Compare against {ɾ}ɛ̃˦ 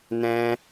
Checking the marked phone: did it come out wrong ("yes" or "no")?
yes